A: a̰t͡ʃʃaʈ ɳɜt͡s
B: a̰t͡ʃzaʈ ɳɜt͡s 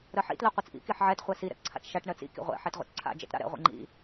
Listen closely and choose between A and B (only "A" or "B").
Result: A